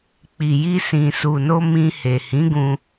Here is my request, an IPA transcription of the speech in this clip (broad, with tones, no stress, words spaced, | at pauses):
k͡pi˨ji˧sĩ˨ su˨no˧ mĩ˧he˨ hĩ˨˦ɡũ˧